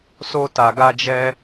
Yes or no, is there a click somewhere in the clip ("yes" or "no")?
no